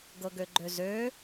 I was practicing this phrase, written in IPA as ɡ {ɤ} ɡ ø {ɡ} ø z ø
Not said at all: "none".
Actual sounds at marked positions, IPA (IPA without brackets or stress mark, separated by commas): ɤ, ɡ͡ǃ